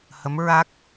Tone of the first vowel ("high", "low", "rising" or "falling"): rising